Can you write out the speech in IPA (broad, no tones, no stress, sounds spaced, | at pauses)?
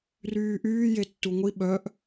r yː ʔ yː j e tː u ŋʷ i ɓ œ ʔ